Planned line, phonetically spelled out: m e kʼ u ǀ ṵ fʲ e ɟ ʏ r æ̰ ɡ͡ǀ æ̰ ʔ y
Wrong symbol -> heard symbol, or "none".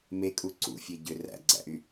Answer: none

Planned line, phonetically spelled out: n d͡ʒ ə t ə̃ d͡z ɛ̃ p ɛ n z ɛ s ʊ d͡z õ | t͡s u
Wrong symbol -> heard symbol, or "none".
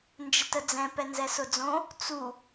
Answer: ə̃ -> ə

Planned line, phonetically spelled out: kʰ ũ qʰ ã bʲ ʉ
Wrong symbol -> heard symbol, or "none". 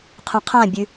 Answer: kʰ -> qʰ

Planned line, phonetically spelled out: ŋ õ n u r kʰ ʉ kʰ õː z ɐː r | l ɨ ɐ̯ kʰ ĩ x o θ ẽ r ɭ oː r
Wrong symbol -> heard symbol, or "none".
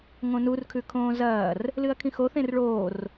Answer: none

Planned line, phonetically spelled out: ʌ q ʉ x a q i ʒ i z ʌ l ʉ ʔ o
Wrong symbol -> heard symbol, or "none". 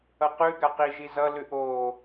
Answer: x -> ɡ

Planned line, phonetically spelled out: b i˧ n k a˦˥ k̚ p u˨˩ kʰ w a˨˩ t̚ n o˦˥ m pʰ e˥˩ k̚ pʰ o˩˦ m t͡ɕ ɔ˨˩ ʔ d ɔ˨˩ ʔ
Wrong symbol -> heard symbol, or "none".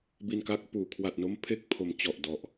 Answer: u˨˩ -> uː˨˩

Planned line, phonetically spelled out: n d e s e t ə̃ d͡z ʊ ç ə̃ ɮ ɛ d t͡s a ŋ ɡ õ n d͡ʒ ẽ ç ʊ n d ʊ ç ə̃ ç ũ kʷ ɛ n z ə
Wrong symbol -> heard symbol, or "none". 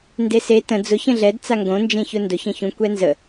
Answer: none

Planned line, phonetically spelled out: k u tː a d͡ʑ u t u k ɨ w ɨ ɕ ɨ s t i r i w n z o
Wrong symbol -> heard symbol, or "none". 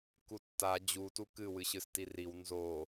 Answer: none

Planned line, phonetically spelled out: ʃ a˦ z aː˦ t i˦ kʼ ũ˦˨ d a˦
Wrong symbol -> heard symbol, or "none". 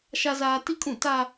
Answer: d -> t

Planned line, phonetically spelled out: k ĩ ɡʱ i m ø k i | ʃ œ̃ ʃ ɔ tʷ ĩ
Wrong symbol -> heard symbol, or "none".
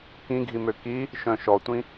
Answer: none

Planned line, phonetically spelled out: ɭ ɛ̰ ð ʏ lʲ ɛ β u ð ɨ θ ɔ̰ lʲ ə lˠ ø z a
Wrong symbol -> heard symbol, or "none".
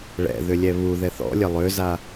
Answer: ɨ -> ɛ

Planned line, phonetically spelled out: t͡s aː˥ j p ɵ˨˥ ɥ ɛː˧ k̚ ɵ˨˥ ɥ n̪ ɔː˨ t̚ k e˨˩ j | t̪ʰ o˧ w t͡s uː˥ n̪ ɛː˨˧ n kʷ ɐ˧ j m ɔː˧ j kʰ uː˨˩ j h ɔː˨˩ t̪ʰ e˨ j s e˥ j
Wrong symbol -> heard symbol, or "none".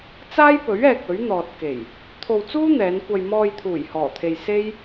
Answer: kʰ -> t̪ʰ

